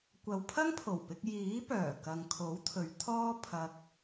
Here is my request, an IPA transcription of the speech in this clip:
kʷ ɐ˨ w pʰ ɐ˥ ŋ pʰ o˨˩ w p ɪ˧ k̚ j iː˨˥ p œː˨˩ k ɐ˨ ŋ kʰ o˨˥ w t̪ʰ ɵ˨˧ ɥ t̪ʰ ɔː˥ pʰ ɐ˧ k̚

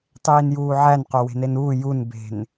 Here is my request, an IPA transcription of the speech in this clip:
tˤ iː n j uː ʕ æ n q o w e̤ n e n uː j u n b e̤ n

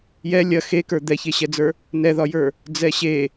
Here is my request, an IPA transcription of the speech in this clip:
j ɛ lʲ ɐ x e k ə˞ d̪ ɛ ç e ɕ ɛ d͡z ə˞ | n ɛ ð ɒ j ə˞ | d͡z ɛ ɕ e

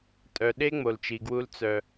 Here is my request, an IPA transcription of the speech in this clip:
tʼ œ˨ ɗ e˦ ŋ͡m o˨ l t͡ʃ i˨ ɡ w u˦ l t͡s œ˦

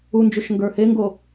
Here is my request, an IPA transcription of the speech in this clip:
u n d͡ʒ u ʃ ŋ ɡ ə˞ h e ŋ ɡ o

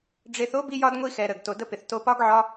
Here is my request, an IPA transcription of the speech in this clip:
ɖ͡ʐ e˧ θ o˦ b i˦ j ɒ˦ d ŋʷ i˦ x ɛ˧ ɾ ə˨ ɡ t o˨ d ə˧ p ɪ˨ θ t o˧ p ɒ˦ ɡ ʕ ɒ˦

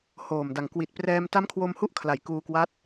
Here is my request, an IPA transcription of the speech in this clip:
h oː˨˩ m d a˨˩ ŋ k w i˨˩ t̚ p r ɛː˧ m t a˦˥ m kʰ w o˧ m h u˦˥ ʔ kʰ l a˩˦ j k uː˧ k w a˦˥ t̚

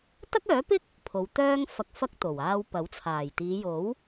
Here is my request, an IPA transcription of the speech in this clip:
t̪ ɐ˥ k̚ œː˨˥ p ɪ˥ k̚ | pʰ o˨˧ w t̪ œː˥ ŋ f ɐ˧ k̚ f ɐ˥ k̚ t̪ o˨˩ w aː˧ w p ɐ˨˥ w t͡sʰ aː˨˩ j t̪ iː˨˧ j o˨˥ w

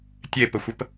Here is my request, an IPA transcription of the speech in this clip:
tʲ e p ə xʷ ə p

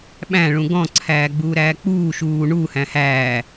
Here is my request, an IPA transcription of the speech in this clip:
ɓ æ̃ ɭ ũ ɡ ɔ̃ ǀʰ æː ɡ͡b uː ɾ æː k͡p uː ʃ uː ɳ u h æ̃ h æː

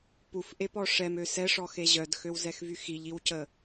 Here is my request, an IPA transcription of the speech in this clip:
p u f ʔ e p ɔ ʂ ɛ m ø s ɛ ʂ ɔ x e ʑ œ d x ø w z ɛ x v y x i ʎ i w c ə

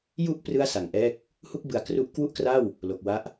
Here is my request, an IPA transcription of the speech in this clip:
j u˥˩ ʔ p r ɯ˥˩ a̯ s a˨˩ ŋ ʔ ɛː˥˩ k̚ | h u˥˩ k̚ b ɯ˨˩ a̯ k r u˦˥ ʔ k w u˥˩ ʔ k r a˥˩ w | l o˨˩ k̚ w a˦˥ ʔ

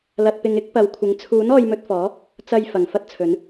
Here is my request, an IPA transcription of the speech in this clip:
l ɐ˨ t̚ p ɪ˨ ŋ ɪ˨˥ k̚ p ɐ˨˧ w kʷʰ ɪ˨˥ ŋ t͡sʰ uː˨˥ n ɔː˧ j m ɵ˧ t̚ f ɔː˨˥ | t͡s ɐ˧ j f ɐ˨˩ ŋ f ɐ˥ t̚ t͡sʰ ɵ˨˥ n

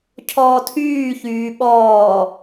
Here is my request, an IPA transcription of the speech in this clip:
cʰ ɔː tʰ yː ç yː ɓ ɔː

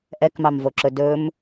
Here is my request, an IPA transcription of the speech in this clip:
ʔ ɛ k m ɑ m v o ǁ ɵ d ɵ m

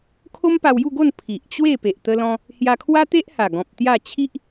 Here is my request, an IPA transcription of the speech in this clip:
kʰ o˦ m p a˧ w j u˥˧ ɡ o˥˧ n pʰ i˨ ʔ t͡ɕ w e˥˧ p e˨ ʔ t̪ ə˧ l ɔ̃˧ | h j a˧ kʰ w a˦ t̪ e˦ ʔ h a˨˩ ɡ ɔ̃˨ p̚ t̪ j a˥˧ t͡ɕʰ i˦ ʔ

